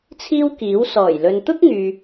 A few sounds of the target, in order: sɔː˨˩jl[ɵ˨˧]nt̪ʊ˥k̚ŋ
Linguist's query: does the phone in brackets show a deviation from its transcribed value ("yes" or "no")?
yes